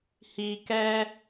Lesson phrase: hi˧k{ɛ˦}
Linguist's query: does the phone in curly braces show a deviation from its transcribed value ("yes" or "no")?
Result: no